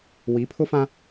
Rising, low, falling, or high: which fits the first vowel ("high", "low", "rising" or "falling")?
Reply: rising